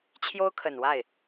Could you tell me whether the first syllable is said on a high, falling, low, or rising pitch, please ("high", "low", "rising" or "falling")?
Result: high